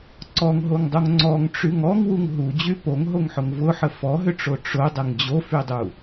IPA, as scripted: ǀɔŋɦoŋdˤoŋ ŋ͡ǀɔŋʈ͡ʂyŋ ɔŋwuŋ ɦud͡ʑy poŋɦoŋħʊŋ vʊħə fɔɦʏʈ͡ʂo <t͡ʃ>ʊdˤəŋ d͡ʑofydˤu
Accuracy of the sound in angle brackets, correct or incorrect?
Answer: incorrect